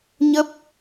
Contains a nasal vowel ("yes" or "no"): no